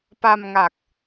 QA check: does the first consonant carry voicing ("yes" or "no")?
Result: no